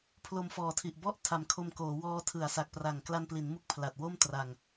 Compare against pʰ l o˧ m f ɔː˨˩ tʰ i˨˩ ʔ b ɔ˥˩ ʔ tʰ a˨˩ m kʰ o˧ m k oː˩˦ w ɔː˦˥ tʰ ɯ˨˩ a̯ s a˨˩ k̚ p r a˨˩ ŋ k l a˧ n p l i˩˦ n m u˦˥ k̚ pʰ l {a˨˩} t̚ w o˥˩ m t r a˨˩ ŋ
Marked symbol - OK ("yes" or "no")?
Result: yes